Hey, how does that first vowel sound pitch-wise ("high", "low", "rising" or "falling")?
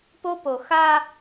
high